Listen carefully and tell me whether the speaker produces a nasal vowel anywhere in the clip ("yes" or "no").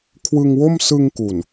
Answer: no